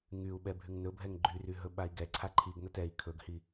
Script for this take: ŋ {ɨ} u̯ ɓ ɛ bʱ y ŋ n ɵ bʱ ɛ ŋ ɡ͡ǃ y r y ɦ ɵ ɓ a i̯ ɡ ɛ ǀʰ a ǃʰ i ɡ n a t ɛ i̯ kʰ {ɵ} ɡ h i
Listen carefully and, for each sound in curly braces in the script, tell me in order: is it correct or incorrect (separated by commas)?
incorrect, correct